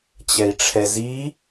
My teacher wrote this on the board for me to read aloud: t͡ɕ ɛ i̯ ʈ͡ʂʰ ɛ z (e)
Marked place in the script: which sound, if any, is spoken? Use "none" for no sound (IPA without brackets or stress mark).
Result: i